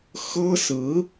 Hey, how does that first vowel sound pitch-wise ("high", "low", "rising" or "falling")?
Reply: high